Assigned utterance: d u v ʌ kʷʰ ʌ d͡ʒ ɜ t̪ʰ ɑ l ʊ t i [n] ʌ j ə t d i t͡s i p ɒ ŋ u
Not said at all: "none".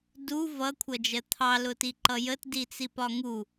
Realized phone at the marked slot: ǃ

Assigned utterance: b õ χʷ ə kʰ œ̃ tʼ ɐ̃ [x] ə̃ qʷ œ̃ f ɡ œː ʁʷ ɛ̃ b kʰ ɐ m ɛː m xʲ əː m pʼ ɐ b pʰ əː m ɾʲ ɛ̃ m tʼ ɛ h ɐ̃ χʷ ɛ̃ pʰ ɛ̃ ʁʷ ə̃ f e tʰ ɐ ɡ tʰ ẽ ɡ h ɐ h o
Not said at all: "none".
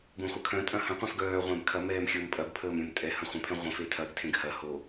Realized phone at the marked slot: h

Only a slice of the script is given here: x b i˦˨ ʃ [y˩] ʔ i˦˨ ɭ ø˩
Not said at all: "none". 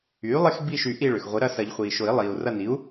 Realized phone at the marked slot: y˨˩˦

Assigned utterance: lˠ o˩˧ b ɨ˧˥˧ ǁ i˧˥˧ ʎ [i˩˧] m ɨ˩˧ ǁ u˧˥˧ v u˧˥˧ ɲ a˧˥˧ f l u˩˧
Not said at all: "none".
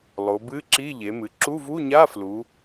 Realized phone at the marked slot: e˩˧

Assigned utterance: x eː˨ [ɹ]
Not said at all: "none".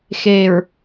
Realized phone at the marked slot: ɹ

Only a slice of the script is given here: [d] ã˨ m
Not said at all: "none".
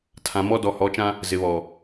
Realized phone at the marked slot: tʰ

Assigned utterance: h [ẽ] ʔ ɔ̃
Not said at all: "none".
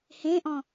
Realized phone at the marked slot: ẽ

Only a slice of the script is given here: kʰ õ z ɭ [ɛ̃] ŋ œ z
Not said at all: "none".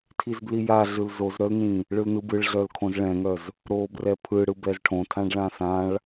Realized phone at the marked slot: ɛ̃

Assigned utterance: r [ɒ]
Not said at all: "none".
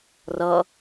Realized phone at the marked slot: ʌ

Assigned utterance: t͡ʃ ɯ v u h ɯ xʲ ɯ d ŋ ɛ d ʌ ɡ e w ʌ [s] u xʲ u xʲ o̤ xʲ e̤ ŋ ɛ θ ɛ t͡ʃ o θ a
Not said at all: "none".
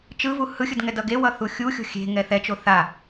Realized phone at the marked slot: θ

